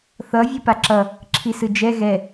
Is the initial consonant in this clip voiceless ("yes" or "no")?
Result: yes